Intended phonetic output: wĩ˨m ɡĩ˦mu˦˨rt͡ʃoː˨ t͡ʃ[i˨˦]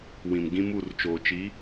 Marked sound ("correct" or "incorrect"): correct